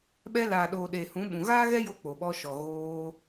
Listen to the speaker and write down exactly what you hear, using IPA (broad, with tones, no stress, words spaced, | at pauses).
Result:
ɓɛ˧laː˨ɗoː˨ ɗeː˨hũ˨˦ɓũ˨ ɣaː˦ɣɛ˦jo˧ k͡po˨ɓɔ˧ʃɔ˨ ɣoː˧